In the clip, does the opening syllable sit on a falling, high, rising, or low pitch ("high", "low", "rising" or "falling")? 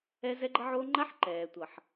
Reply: high